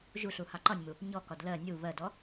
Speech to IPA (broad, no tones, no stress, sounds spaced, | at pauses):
ʒ u ɬ u h ɑ ǃ ɒ nʲ m u | ɲ ɔ k ɒ d l ɜ nʲ u β ɜ d ɔ